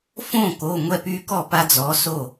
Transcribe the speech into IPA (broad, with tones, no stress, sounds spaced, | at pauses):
f õ˥˩ k o˩˧˩ ŋʷ ɛ˥˩ p y˦ k ɔ˥˩ p a˦ d͡z ɔ˨˥ s o˥˩